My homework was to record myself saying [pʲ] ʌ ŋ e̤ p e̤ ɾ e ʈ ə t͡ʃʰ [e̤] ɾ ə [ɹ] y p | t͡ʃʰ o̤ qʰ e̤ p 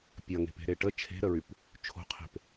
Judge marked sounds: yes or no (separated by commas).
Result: yes, yes, yes